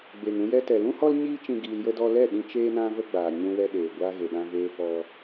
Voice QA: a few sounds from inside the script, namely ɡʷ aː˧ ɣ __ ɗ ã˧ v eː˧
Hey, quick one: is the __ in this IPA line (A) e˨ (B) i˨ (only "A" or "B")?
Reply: A